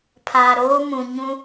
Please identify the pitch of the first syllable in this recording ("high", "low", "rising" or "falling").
low